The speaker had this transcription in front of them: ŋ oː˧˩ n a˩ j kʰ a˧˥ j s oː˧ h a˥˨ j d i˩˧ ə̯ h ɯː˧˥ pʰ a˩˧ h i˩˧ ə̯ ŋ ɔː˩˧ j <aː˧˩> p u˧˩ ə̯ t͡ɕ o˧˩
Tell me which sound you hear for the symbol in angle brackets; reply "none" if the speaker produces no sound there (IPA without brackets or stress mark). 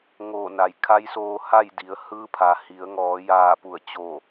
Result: aː˧˩